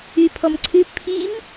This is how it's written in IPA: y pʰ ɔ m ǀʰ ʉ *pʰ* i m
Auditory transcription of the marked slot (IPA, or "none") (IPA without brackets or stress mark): pʰ